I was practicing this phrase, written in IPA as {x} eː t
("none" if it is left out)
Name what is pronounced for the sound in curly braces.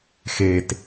x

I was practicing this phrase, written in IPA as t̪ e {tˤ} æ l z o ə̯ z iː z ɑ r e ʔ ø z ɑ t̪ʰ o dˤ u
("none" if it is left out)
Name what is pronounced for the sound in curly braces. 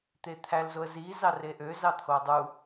t̪ʰ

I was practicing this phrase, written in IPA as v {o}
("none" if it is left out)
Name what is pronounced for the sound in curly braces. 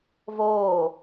oː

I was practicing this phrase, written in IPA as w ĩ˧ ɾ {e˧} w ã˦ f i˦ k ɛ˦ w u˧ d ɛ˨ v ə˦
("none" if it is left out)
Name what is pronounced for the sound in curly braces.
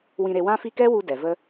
e˧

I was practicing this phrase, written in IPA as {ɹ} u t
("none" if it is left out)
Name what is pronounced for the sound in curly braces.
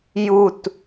j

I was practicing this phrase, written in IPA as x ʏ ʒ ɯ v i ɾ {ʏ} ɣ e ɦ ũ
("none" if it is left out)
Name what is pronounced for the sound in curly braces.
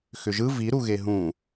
u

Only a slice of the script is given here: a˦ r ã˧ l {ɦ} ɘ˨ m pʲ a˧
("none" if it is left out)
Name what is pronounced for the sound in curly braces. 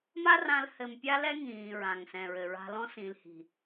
h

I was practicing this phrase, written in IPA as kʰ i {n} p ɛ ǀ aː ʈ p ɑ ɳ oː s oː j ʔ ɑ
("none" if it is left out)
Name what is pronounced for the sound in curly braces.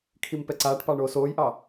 m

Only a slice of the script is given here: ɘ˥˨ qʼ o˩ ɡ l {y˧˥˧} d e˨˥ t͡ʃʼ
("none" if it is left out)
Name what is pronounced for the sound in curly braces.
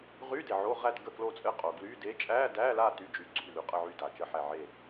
y˧˥˧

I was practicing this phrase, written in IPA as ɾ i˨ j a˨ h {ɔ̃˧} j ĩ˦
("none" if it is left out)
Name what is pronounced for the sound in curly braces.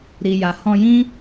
ɔ̃˧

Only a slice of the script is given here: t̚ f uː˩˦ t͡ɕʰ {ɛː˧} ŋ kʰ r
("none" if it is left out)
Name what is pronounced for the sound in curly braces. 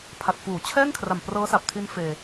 ɛː˥˩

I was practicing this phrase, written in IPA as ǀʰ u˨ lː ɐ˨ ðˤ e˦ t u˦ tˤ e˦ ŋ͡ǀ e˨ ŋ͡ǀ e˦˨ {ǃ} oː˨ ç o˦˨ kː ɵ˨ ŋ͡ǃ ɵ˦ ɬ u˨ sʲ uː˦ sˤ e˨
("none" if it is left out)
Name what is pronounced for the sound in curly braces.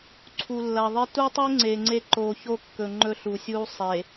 ǃ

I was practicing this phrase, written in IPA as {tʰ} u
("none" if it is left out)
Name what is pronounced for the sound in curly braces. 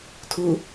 tʰ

